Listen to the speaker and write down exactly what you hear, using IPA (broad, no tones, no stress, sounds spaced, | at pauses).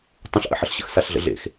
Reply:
tˤ ə̃ ɬ ʔ ə̰ ħ ə ɬ ɕ ə̰ x s a ɬ ɮ ə̰ ɮ ḛ x